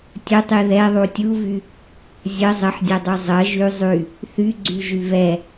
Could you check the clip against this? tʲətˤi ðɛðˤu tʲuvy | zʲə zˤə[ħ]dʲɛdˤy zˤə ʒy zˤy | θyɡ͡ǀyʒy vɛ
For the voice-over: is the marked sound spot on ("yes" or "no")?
yes